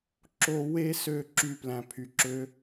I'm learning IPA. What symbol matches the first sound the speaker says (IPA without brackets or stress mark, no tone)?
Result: ǁ